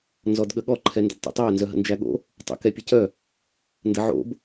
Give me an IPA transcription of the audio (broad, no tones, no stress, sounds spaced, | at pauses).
n z ɔ d ɠ ə ɠ ɔ ǃʰ ɛ n d ə̰ d tˤ o̰ tˤ ɛ ɐ̯ n z œ ɦ ə̰ n d͡ʒ æ ɠ o̰ | tˤ ə̰ k ɛ pʲ ə c œ | n d ə ʕ o̰ b